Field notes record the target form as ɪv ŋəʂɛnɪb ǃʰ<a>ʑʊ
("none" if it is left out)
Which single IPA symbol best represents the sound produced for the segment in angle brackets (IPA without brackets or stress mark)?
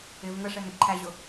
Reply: æ